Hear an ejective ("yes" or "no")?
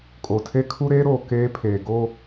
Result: yes